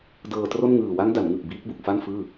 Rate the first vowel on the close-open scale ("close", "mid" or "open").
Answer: mid